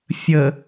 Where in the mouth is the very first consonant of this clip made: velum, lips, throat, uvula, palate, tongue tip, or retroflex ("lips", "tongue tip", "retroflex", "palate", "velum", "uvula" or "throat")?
lips